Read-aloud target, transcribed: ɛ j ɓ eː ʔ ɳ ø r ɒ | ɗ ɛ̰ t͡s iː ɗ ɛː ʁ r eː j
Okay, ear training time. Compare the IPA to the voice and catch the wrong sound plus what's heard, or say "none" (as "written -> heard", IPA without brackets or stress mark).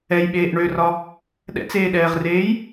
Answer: iː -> eː